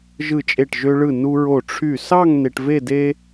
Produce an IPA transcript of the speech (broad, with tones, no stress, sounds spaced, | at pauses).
ʒ ɯ˧˩ t͡ʃʼ e˧˩ ʈ ʒ ø˧ ɭ ɯ˧˩ n u˧ ɹ o˧˩ ʈ͡ʂʰ y˧˩ s ɑ˥˧ ŋ n e˧ ʈ v e˥˧ d e˥